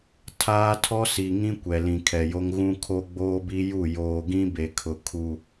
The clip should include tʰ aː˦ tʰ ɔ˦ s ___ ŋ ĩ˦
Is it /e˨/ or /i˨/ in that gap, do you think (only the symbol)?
i˨